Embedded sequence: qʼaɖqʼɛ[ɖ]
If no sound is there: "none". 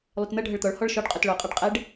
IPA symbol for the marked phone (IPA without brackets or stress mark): ɖ